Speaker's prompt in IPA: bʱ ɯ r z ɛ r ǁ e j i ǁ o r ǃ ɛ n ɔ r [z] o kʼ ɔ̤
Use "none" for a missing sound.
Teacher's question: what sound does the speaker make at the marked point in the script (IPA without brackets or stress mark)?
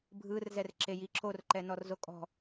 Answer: z